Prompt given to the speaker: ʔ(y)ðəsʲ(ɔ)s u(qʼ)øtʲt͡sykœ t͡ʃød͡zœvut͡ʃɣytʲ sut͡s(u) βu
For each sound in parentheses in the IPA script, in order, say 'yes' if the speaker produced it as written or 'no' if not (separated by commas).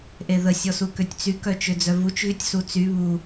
no, yes, no, no